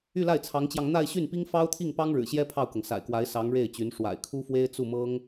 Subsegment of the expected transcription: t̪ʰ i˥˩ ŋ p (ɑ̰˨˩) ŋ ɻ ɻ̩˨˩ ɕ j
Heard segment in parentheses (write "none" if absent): ɑ˥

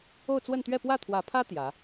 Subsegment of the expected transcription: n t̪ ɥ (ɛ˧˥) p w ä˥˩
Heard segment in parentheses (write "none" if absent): ɛ˥˧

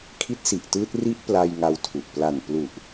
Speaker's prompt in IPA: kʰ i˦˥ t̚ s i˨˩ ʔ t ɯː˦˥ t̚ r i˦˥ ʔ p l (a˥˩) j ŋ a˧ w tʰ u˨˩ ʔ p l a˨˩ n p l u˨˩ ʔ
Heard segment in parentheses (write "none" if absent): a˧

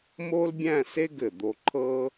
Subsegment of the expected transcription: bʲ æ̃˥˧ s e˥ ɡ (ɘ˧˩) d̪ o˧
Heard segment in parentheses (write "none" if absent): ɘ˧˩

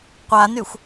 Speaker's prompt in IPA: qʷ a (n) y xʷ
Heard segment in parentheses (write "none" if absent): n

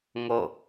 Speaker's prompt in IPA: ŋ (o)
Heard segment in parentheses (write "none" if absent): o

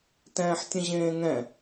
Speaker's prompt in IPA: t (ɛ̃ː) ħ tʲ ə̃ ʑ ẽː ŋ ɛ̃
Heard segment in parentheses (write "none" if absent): ɛ̃ː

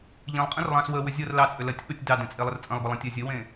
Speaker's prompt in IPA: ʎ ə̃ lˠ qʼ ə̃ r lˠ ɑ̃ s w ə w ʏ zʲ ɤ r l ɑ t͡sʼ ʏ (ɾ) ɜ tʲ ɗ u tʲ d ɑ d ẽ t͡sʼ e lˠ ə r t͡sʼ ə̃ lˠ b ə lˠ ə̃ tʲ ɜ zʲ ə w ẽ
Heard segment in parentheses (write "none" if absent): l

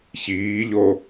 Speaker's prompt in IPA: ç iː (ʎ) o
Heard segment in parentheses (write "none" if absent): ʎ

